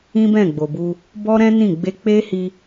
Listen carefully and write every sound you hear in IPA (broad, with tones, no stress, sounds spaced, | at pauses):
ĩ˦ b ɛ̃˦˨ ɡ͡b o˨ b u˧ | b ɔ˦ ɾ ɛ̃˦ n ĩ˦˨ ɡ͡b e˧ k͡p e˦ h i˧